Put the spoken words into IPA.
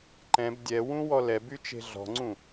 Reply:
ǃ ɛ̃ b dʲ ɛ w ũ w ɔ l ɛ b y t͡ʃ e̤ ɮ ɔ̤ ŋ͡ǀ ũ

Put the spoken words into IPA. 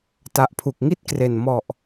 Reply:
t a˨˩ ʔ pʰ u˨˩ k̚ ŋ i˥˩ t̚ k r e˨˩ n m ɔ˨˩ ʔ

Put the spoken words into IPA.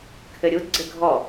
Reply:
kʰ ɘ ɾʲ u d ɡ͡ǀ ɘ ɡʱ ɔ

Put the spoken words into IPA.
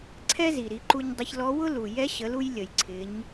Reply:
ǀʰ ɛ˥ z i˩ ɾ i˩˧ ǃ u˧ ɲ dˤ ɪ˧ ç l ɔ˧˥ w ʊ˥ l u˩ j ɛ˧˥ ɕ ə˩˧ l u˧ j lʲ ə˩ j ǀʰ ɪ˩˧ ɲ

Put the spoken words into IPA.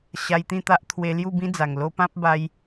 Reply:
ɕ a˧ j t̪ ĩ˥˧ t̪ a˦ ʔ t̪ʰ w e˧ l j u˥˧ b ĩ˦ d͡z a˨˩ ŋ l o˧ p ã˦ p̚ b a˧ j

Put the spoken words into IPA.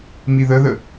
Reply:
m i ð ə ð ə

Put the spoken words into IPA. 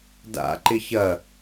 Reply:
d a̰ ǃ ɪ ç ɐ

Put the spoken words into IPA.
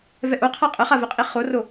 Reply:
v ɛ ʔ o qʰ a qʼ ə χ a v ɛ qʼ i χ o r o

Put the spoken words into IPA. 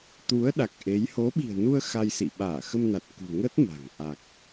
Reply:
t̪ u˨˦ ə̯ ɗ a˨˩ k̚ ʔ e˨˦ j h o˨˦ ɓ i̤˨˩ ə̯ n u˧ ə̯ x a˧ j s ḭ˧˨ ɓ aː˧˩ x ə˧ m n a˨˩ t̚ k ṳ˨˩ ŋ ə˦˥ t̚ m a̤˨˩ ŋ ʔ a˨˩ k̚

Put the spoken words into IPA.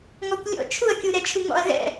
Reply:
ŋ ɔ kʷ lʲ ɔ̰ t͡ʃʰ u ɐ̯ kʲ u ɾ ɛ t͡ʃʰ u ŋ ɔ̰ ɐ̯ ɣ ɛ̰

